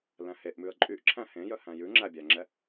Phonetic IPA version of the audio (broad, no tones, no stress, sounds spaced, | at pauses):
l æ̃ h e ʔ m ʉ ə̯ ǃʼ y ʔ ǁʰ æ̃ h ẽ j œ h æ̃ j ʉ ŋ͡ǁ æ bʲ æ ŋ͡ǁ ɛ